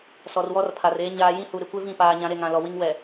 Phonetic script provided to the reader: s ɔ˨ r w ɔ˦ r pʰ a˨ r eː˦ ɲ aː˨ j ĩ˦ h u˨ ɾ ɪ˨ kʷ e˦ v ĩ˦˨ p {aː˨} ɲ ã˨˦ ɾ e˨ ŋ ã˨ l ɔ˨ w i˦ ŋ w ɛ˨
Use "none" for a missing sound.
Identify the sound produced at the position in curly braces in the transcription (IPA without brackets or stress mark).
aː˨